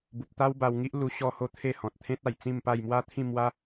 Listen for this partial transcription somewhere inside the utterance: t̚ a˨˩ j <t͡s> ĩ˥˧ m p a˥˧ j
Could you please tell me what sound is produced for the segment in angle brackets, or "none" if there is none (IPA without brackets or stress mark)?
t͡s